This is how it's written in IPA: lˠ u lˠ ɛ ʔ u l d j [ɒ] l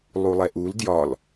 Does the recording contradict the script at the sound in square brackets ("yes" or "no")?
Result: no